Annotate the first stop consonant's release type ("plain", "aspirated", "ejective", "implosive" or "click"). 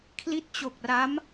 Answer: aspirated